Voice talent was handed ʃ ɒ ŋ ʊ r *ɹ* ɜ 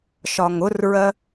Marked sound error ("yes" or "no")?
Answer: no